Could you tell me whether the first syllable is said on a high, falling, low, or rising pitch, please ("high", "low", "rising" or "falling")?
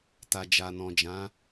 low